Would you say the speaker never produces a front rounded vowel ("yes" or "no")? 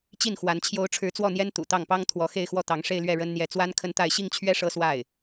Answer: yes